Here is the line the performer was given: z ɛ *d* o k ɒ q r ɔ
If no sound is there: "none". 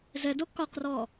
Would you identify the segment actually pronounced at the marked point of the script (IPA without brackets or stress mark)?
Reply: d